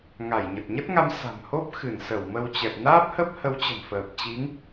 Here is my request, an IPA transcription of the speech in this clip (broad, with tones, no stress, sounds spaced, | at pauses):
ŋ a˧˩ j ɲ ə˨˩ t̚ ɲ ə˦˥ t̚ ŋ a˧ m s a̤˨˩ m h o˦˥ p̚ x ɨ˧˩ n s ə˧˩ w m ə˧ w t͡ɕ ɛ˨˩ p̚ n aː˦˥ p̚ h ə˦˥ p̚ h ə˨˦ w t͡ɕ ə̤˨˩ m f əː˨˩ p̚ t͡ɕ i˨˦ ŋ